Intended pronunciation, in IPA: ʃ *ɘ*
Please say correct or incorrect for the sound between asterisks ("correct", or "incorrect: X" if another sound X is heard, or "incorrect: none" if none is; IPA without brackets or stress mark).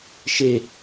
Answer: incorrect: e